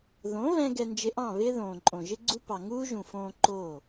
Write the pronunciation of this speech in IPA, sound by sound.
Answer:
ð õ˨˦ β ɛ̃˧ ɡ ɛ˧ n d͡ʒ ɪ˧ ʔ ɑ̃˦˨ β ɪː˦ ð õː˨ ǃʼ õ˨ ʒ ɪ˦ ɡ͡ǀ u˦ p ɑ˨ ŋ uː˦ ʒ ũ˨ f õː˧ ǃ o˦˨

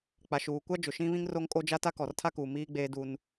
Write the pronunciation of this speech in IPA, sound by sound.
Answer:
k͡p a˨ ʃ uː˨ kʷ a˦ d͡ʒ ʊ˨ ʃ ĩ˦ β ĩ˦ ŋ r o˦ ŋ kʼ o˦ d͡ʒ a˦ t a˦ k ɔ˨ r tʰ a˦ k uː˨ m iː˦ ɡ͡b eː˦ d u˦ n

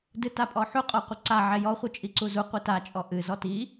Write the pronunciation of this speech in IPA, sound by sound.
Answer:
d ɨ t a pʼ ɔ ħ u qʼ ɔ qʷ ɘ ǀ a ʕ ɛ j ɔ χʷ ɨ t͡ʃʼ i ǀ u z u qʷ i t a t͡ʃʼ ɔ ʔ ɨ z ɔ t i

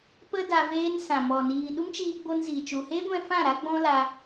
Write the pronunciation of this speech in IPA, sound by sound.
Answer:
p ə˧ d a˧ v eː˦ n s ã˨ m ɔ˨ n iː˨ ɗ u˦ m t͡ʃ iː˧ ɡ͡b o˧ n z i˨ t͡ʃ u˨ h eː˦ ɡʷ ɛ̃˧ f ã˦˨ ɾ a˦ ɡ͡b ɔ̃˦ l a˧

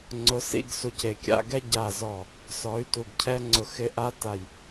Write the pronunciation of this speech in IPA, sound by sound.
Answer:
ŋ͡ǀ ʊ˨˦ s ḭ˧ ɡ s u˨ c e˨ kʲ a̰˧ ɡ ɛ˦ ɟ a˨ z ɔ˨ | s ɔ˨˦ y̯ t u˨ ɡ cʰ ɛ˦ ŋ͡ǀ ʊ˨ x ɪ˧ ʔ a˦ t a˨ j

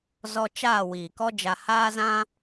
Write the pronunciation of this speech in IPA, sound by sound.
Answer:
z ɔ˧ t͡ʃ aː˦˨ w iː˨ k ɔ˦ d͡ʒ a˧ h aː˦ z ã˦

